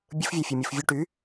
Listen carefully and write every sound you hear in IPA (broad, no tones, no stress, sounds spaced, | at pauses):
bʲ ɯ f vʲ æ fʲ ɯ mʲ ɯ f vʲ u ʈ y